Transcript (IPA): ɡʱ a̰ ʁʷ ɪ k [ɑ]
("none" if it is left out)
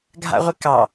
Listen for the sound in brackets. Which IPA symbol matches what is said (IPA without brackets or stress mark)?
ɑ